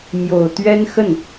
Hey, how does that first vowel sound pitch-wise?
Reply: low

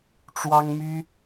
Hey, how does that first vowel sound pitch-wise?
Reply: high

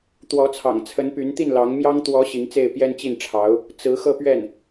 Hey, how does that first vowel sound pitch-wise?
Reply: rising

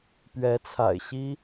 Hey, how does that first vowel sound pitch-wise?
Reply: rising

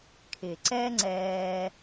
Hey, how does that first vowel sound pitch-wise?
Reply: low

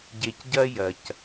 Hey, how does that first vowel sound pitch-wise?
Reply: low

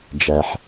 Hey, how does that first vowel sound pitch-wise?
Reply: low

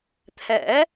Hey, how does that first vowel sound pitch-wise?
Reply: rising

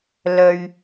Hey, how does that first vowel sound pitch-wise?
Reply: low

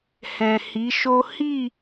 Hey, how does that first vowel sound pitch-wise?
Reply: low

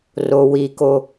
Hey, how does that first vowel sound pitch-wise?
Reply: low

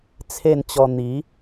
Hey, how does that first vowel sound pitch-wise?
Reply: falling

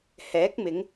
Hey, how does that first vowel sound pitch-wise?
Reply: rising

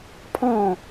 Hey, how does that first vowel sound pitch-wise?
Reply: falling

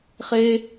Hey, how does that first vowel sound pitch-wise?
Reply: high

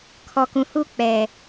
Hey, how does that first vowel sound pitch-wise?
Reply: low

